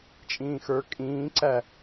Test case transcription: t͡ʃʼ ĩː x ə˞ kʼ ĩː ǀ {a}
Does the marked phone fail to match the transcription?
yes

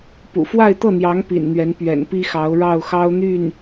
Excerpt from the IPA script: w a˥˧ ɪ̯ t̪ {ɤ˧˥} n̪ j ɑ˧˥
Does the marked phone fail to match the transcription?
yes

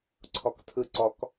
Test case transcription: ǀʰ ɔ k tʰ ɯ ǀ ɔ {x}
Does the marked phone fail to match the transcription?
yes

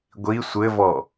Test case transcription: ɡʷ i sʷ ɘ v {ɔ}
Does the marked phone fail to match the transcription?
no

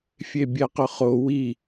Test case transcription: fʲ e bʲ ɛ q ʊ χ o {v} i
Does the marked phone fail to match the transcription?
yes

